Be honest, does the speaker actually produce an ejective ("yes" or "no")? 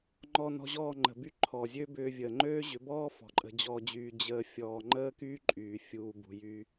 yes